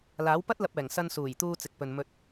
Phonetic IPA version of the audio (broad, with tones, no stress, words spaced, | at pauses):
laː˨˥wpɐ˥t̚lɐ˧p̚ɛː˨˩ŋ sɐ˧nsuː˨˩j t̪uː˧t͡sɪ˨k̚pɵ˨n mɵ˧t̚